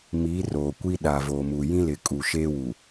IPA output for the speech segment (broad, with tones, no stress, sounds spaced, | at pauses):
m iː˨˦ r oː˨ kʷ i˦ ɗ a˨ v oː˨ m u˨ j ĩ˦ l ɪ˨ kʼ u˨ ʃ eː˦ w u˨